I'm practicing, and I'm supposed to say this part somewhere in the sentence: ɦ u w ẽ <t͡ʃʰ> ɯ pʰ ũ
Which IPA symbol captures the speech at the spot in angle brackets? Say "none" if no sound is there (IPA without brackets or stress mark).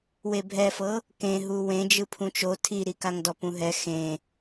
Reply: d͡ʒ